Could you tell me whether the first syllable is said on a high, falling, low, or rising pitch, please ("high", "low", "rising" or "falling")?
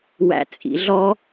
low